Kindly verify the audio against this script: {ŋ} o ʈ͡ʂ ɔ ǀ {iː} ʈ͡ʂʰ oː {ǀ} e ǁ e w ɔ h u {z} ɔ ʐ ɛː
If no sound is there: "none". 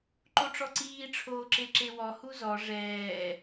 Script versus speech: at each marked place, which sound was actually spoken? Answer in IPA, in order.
ǃ, iː, ǁ, z

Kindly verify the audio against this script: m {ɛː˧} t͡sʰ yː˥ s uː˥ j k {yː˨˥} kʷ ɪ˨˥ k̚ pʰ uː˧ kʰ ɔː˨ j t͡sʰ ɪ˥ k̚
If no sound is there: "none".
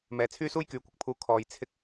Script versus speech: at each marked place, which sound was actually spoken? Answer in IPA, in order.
ɛː˨, yː˨˥

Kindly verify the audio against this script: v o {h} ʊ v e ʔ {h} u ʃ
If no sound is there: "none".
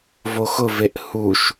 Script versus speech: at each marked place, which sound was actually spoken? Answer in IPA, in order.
x, h

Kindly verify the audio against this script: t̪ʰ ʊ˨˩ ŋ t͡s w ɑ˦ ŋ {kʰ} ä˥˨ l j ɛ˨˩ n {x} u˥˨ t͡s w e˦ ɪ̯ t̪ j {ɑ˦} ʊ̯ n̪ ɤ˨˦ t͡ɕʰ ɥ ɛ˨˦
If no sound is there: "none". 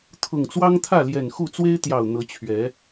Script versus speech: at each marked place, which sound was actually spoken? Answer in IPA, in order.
t̪ʰ, x, ɑ˨˩

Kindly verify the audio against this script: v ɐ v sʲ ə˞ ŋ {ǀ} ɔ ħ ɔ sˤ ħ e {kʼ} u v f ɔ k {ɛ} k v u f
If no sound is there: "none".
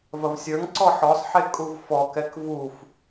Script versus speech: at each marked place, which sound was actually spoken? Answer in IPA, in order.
ǀ, kʼ, ɛ

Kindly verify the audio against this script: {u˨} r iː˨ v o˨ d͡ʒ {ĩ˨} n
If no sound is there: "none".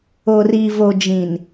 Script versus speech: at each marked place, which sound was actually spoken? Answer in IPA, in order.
o˨, ĩ˨

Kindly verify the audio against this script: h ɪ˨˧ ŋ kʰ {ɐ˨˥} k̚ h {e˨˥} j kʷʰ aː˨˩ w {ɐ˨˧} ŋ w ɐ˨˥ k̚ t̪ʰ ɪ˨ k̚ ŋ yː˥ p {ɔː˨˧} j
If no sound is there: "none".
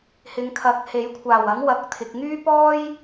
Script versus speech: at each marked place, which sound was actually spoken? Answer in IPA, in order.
ɐ˨˥, e˨˥, ɐ˨˥, ɔː˥

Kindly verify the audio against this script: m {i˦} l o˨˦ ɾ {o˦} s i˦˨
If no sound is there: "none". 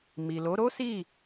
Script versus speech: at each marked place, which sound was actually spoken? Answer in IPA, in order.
i˨, o˦

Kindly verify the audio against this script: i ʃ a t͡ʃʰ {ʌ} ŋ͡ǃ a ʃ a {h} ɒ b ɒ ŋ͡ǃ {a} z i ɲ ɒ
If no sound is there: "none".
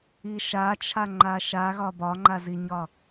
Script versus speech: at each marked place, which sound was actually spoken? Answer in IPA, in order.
a, ɣ, a

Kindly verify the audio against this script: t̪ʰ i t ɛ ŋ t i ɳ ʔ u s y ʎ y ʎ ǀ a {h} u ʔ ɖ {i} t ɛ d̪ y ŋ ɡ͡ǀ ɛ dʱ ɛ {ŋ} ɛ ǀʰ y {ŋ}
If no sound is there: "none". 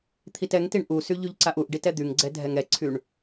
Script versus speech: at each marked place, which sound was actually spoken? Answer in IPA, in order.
ʔ, i, ŋ, ɳ

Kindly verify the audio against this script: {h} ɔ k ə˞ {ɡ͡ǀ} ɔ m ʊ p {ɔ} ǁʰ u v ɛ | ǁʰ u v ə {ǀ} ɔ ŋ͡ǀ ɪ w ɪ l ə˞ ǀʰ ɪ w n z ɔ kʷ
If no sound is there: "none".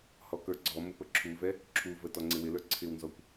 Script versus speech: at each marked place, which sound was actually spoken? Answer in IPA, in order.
h, ɡ͡ǀ, ə, t

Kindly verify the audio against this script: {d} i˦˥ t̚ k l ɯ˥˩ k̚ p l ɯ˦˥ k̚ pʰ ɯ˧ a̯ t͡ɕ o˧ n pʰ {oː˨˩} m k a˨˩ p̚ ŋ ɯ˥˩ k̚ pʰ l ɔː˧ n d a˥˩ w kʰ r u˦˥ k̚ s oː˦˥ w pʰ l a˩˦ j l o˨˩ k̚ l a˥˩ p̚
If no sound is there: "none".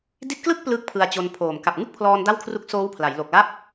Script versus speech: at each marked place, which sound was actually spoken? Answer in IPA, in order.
d, oː˨˩

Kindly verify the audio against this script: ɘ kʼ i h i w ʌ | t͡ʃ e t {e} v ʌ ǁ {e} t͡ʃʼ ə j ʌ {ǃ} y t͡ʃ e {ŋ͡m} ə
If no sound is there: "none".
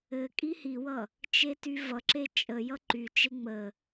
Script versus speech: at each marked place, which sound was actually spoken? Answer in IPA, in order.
y, e, ǃ, ŋ͡m

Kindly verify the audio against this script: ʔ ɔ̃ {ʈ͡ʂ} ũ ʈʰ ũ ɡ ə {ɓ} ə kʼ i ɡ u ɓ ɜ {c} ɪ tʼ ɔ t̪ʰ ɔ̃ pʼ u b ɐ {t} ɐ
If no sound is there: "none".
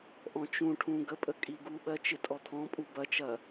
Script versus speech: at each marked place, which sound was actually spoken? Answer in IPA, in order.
t͡ʃ, pʼ, t͡ʃ, t͡ʃ

